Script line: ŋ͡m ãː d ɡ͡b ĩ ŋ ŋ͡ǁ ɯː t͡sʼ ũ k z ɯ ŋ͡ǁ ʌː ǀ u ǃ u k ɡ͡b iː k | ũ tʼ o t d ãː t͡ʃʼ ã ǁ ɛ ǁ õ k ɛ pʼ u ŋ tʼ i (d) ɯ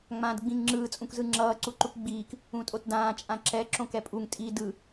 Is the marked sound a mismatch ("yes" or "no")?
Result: no